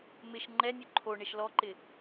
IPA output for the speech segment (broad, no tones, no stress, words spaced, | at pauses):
mɪʃ ŋ͡ǃɛnʲœ ǃʰo ɳɪʃlɔǃɪ